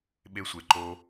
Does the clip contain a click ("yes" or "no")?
yes